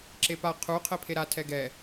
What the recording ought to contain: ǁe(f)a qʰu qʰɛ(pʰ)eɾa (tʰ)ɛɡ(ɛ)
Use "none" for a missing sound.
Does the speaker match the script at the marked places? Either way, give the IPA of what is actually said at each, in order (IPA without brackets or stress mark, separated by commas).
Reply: p, pʰ, tʰ, ɛ